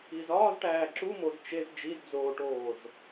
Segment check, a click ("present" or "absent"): present